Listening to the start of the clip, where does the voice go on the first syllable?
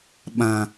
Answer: low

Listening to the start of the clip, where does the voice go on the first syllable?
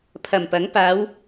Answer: low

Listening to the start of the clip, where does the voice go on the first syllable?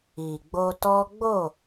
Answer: low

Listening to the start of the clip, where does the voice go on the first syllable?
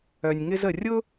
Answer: low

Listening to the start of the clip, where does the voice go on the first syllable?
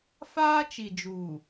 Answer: high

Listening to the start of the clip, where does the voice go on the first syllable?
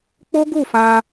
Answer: high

